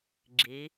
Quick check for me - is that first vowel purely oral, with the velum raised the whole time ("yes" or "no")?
yes